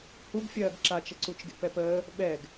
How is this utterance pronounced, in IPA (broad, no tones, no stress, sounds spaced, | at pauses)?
h u ɡ fʲ ɜː ɡ ǁ a t͡ʃ ə ǀ u t͡ʃ ɡ ḛ p ɛ p əː | ɓ ɛ ɡ